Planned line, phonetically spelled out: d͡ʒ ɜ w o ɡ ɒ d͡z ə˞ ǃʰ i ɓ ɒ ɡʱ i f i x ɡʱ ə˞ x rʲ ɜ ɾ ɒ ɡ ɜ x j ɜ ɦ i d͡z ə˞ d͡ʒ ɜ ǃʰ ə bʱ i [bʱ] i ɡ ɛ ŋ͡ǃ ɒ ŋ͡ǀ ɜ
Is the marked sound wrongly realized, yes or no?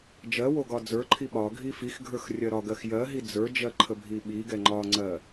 yes